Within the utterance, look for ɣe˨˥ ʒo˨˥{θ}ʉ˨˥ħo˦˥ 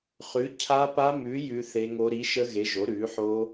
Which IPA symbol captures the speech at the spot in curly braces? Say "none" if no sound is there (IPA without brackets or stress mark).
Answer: ɾ